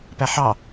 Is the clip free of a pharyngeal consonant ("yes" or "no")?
no